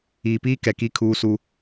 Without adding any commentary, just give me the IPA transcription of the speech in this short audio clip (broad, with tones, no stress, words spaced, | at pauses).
iː˨piː˦ kɛ˨ki˦ kʰuː˦su˦